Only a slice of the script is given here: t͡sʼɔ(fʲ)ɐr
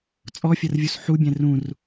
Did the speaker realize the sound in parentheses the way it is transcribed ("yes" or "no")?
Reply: yes